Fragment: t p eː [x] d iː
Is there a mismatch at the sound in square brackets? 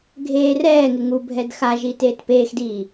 no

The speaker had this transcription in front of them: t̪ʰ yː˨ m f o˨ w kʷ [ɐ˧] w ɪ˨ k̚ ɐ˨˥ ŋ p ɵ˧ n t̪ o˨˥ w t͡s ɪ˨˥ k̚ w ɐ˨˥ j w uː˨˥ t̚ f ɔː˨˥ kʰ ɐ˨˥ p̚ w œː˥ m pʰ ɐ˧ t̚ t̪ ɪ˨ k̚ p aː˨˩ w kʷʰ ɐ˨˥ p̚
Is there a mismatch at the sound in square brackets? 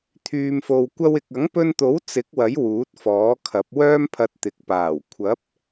no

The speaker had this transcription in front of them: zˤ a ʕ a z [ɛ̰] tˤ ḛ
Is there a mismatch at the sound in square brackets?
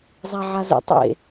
yes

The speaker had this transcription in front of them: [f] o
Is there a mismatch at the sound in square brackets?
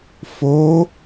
no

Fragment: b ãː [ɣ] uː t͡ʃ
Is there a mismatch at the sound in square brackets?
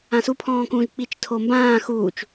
yes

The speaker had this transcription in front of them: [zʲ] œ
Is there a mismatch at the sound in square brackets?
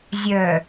no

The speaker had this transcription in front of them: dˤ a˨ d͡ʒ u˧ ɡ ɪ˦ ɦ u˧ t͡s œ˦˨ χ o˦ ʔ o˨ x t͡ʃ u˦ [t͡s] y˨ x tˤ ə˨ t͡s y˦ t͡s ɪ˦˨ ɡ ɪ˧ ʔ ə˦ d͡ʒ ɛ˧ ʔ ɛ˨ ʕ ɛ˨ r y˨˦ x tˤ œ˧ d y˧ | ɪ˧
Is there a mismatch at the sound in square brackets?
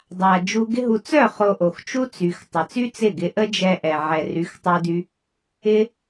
no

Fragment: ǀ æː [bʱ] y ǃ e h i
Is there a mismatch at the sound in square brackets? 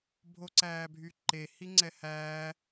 no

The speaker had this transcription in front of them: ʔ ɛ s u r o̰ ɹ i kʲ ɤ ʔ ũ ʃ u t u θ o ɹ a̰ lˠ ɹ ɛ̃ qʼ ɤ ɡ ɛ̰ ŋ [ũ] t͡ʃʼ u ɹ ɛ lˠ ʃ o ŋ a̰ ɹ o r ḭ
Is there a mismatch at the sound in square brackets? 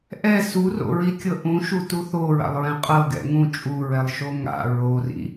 no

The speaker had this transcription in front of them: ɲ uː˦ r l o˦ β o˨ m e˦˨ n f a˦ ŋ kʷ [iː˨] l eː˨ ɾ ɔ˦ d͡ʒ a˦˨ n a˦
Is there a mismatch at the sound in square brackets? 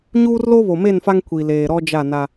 yes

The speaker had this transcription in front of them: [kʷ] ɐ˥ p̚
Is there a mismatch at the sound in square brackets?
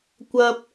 no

